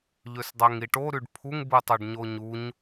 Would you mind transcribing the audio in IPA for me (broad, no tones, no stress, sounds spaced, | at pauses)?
ʎ ø s dˤ æ ŋ i ʈ o ɾ y ɖ pʰ u ŋ b ɯ tˤ ø ɖ ɲ o ɲ u ɲ